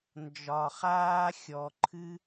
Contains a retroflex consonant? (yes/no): no